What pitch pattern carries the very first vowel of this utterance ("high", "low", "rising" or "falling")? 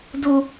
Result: high